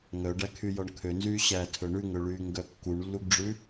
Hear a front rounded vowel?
yes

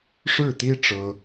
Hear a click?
no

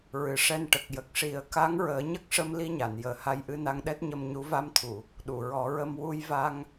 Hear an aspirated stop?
yes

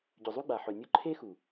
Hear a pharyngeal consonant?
yes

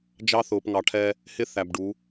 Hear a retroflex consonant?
yes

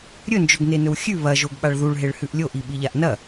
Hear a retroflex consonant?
yes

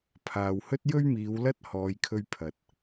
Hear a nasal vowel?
no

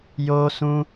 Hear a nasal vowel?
yes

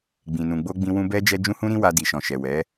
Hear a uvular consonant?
no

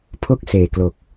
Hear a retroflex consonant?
no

